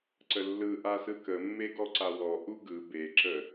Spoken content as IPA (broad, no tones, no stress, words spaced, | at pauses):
ǀəlːɯʔa sɯkəmːe ɡɔǀawɔ ʔuɡɯ beǁə